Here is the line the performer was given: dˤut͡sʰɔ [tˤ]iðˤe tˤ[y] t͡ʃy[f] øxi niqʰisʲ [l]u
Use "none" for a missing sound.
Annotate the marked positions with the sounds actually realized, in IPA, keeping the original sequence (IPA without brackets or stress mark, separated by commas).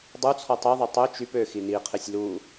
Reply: tˤ, ø, p, l